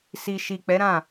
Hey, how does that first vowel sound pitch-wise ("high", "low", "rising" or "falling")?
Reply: low